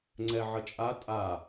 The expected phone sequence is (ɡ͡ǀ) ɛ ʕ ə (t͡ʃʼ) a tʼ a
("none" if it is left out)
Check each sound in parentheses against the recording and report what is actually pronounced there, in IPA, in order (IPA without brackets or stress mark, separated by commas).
ŋ͡ǀ, t͡ʃʼ